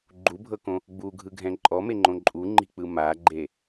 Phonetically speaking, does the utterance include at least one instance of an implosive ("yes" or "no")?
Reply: no